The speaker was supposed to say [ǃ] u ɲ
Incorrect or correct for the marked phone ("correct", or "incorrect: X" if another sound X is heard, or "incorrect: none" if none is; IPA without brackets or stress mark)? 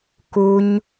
incorrect: k